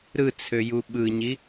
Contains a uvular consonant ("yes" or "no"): no